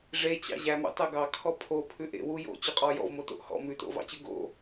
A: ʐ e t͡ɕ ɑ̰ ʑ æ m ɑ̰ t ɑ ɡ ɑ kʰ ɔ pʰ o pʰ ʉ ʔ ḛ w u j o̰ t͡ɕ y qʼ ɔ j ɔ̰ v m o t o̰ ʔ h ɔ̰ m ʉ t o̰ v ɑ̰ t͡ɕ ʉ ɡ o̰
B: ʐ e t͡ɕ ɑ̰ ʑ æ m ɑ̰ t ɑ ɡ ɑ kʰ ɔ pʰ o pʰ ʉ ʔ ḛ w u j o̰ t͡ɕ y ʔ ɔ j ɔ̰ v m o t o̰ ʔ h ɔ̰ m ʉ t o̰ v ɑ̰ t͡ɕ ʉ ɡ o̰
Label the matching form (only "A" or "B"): A